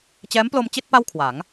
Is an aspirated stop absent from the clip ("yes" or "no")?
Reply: no